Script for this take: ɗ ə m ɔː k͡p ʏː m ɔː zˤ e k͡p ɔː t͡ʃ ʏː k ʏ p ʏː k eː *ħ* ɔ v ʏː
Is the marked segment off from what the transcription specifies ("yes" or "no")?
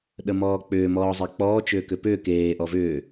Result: yes